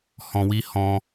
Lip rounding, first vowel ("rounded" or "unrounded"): rounded